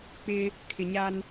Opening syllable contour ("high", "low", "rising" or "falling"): high